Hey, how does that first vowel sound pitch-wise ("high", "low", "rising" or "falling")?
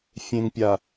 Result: low